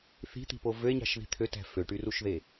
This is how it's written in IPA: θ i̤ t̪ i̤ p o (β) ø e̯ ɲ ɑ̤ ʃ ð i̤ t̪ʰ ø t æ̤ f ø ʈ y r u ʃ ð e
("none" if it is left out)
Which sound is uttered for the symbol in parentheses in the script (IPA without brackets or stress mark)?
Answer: v